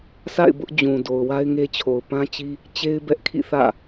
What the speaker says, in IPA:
sʰa̰˦˨ɪ̯ bʊ˦ʔ d͡ʑũ˨ do˨ʊ̯wa˦ɪ̯ŋe˦t͡ɕʰo˨ʊ̯ pã˦t͡ɕi˦ | t͡ɕe˦ɪ̯bɛ˦ʔkʰḭ˦˨ θä̰˦˨

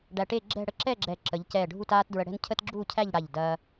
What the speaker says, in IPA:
ɖæ˧ʈe˥˧ ɡ͡ǁɛ̤˥˧ɽə˥ ǁɛ˥˧ɡ͡ǁɛ˧˩ ǁə˩˧ʎcɛ˧˩ ɖʱu˥˧taː˥tdɹə˧ɽɛ̤˥n cʰə˥tɡ͡ǁuː˥˧cʰæ˥˧ʎɽa˧˩ʎ dɐː˧

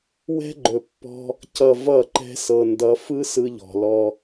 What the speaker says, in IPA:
wɛ̤˦ɡ͡ǃɵ˨pːɔ̤˦ | cʌ˨ vʌ˦˨ǃɛ̤˦ sɤ˨ndʌ˨˦fɯ˦ sɯ˦ʎɔ̤˨lɔ˦

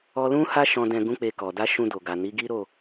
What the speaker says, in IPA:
ɔ˧ lũ˦ha˦ ʃɔ̃˧ dɛ̃˧ɡũ˦ k͡pe˧kɔ˨ da˧ ʃũ˧do˨ɡa˨ni˨˦ ɡi˦ɾo˦˨

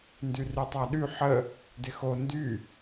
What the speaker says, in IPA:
ndyrytˤaɗy ħə | dɪxo ndy

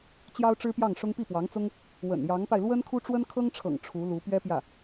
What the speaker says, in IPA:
t͡ɕjɑ˥ʊ̯ʈ͡ʂɻ̩˥pjɑ˥˩ŋʂʊ˥ŋ pi˥˩pwɑ˧˥ŋt͡sʊ˥ŋ | wə̰˨˩njɑ˧˥ŋpa˧ɪ̯ lwə˥nkʰu˥ ʈ͡ʂwə˥nkʰɤ˥ŋʈ͡ʂʰɤ̰˨˩ŋ ʈ͡ʂʰu˧˥lu˧˥ pɥɛ˥pjä˥˩

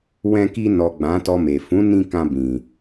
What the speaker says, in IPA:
wɛ̃˧ki˧nɔ˨ ɡ͡bã˨˦tɔ˧me˨ fũ˨˦nĩ˧ kã˧ bĩ˨

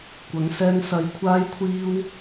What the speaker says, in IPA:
kʷɐ˨˧ŋsɛː˥ŋ sɐ˧j kʷʰaː˥jkʷʰiː˥w

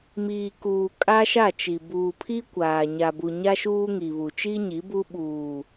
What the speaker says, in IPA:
miː˨kuː˨ kʼa˦ʃa˦˨t͡ʃi˨ buː˨pʰi˦kʷaː˨ ɲa˨bu˨ ɲa˦ʃuː˦ŋi˨βu˨ t͡ʃi˦ɲi˨˦ bu˦ɓuː˨

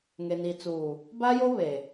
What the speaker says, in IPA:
ŋe˨ni˨t͡suː˨ | ba˦jo˦ βe˨

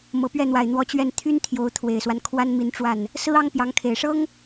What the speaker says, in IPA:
mɤ˨˩pɥɛ˥˩n̪wa˨˩ɪ̯n̪wɔ˧˥ t͡ɕɥɛ˥˩n t̪ʰy˥n t̪ʰjo˧˥ʊ̯t̪ʰwe˨˩ɪ̯swa˦n kʰwa˥nmi˧˥nʈ͡ʂwa˥˩n | sɹ̩˥ ɑ˥ŋpjɑ˧˥ŋkʰe˨˩ɪ̯ ʂɤ˥ŋ

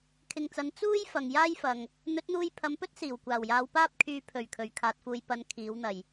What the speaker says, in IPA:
kʰɪ˨ŋt͡sɐ˨˧n t͡suː˥j fɐ˨ŋ jaː˥jfɐ˨ŋ | n̪ɵ˨˥t̚n̪uː˧jpʰɐ˨˧mpɵ˥t̚ siː˨˩wkʷaː˨˩wjaː˨˧w paː˥p̚kʰyː˧ pʰɵ˨˩ɥ kʰɵ˨˧ɥkʰaː˨˥t̚fuː˧j pɐ˧n kʰiː˨˥wn̪ɐ˨˩j

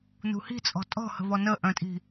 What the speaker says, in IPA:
nṳhi̤t͡sʼɔ̤ tʼɔ̤hə̤vɔ nəʔœ̃tʼi̤

